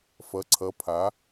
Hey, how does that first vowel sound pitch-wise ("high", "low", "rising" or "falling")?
rising